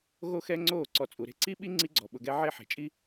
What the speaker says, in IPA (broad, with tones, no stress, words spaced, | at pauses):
ɣo˦xɛ˦ ŋ͡ǀoː˦˨ ǀɔ˨t͡sʼu˨ɾe̤˦ ǀi˦ɓi˦ ŋ͡ǀi˦ɡ͡ǀɔ˨ɓʊ˧ɡɛ˦ ʕe˦˨ħe̤˨t͡ʃʼi˦